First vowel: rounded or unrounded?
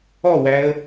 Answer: rounded